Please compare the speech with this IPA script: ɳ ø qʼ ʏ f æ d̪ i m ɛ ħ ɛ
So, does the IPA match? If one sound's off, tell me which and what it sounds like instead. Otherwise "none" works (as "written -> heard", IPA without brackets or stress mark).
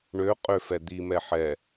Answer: æ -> ɛ